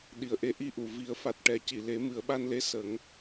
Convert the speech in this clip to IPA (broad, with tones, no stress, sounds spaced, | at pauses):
ɗ i˨˩ ə̯ ʔ e˧˥ ʔ i˧ ʔ u˨˩˨ v i˨˩˦ ə̯ f a˨˩ t̚ ʈ ɛ˨˩˦ c i˨˩˨ l e˨˩˦ m ɨ˨˩˦ ə̯ ɓ a˧ n l e˧˥ s ə˨˩˦ ŋ